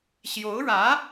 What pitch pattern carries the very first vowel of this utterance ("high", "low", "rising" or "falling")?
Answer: rising